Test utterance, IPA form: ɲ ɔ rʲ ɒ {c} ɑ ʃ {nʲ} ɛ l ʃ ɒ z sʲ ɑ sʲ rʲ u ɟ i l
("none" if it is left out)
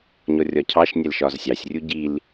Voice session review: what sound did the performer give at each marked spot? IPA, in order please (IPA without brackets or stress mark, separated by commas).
cʰ, nʲ